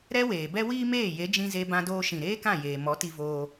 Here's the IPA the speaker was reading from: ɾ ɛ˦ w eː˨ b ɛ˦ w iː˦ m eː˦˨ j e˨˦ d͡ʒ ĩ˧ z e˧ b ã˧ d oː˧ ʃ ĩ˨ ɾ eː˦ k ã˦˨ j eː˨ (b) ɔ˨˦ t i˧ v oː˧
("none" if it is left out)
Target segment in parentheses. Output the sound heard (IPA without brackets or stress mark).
m